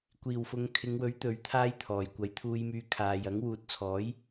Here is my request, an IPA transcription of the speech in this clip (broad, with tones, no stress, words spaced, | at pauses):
kʷiː˨˩wfʊ˨ŋkʰɪ˨˧ŋwɵ˨˥ɥ t̪ɵ˨˥ɥt̪ʰaː˥jt̪ʰɔː˨˩j kʷɐ˨˥jt̪ʰuː˧jmyː˧kʰaː˨j ɐ˨˥ŋwuː˨˥t̚t͡sʰɔː˨˥j